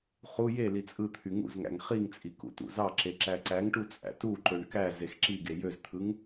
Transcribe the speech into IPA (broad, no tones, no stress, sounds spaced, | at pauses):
χ u j e l i t͡sʼ ɯ t̪ʰ y ŋ ṵ z ŋ æ̰ ŋ χ i ŋ t͡sʼ i k ṵ t ṵ z ɑ ǁ e ǁ æ ǀ æ ŋ ʈ u t͡sʼ æ̰ t u ǃ ø ɳ k æ z e x ǁ i ɡ e j ø z t̪ʰ ɯ ŋ